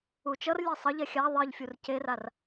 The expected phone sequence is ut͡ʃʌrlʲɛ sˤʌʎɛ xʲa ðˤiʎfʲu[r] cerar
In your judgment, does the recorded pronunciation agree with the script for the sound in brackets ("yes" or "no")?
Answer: yes